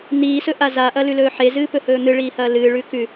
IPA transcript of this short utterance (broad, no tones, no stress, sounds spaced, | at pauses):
n iː s ɵ ʔ a z a ʔ ɐ l ʉ l ɵː ħ e z ɨː p ɵ h ɵː n̪ ɨ ɭ iː h ɐː l ɨː ɭ ʉ k ʉ